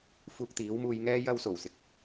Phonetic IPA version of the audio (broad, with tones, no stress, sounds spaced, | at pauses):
f uː˧ k̚ t̪ iː˨˥ w m uː˧ j ŋ ɛː˥ j ɐ˧ w s o˨˩ w s ɪ˨ k̚